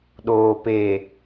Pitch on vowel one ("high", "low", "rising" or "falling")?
low